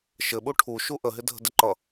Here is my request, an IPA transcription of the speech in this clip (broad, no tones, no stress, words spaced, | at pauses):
ʃɘɓu ʈʰuʃu ʔəɦɪdʱə̤ dɪǃʌ